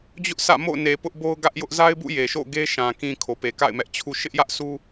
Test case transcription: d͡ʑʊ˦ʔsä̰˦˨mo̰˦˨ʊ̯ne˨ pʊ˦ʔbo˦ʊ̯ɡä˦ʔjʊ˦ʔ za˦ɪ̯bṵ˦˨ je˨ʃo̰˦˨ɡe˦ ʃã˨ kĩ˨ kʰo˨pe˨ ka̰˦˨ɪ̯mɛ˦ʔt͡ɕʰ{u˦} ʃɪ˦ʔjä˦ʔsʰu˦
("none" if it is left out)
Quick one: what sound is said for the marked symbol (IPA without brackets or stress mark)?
u˦